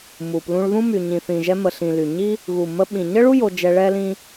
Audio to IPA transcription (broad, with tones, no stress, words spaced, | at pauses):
mu˨ plũ˧ɭðũ˦ my˨ɲĩ˨θĩ˨ʒɛ˧ mə˨ɬĩ˨ly˨ɲi˦ | ɣu˨mə˧ɓĩ˨ ɲə˦ɭu˦ jo˧d͡ʒɛ˧ ɭɛ˦lĩ˦